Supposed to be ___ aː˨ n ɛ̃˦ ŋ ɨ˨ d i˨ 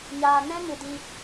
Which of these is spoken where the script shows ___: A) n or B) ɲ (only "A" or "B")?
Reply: B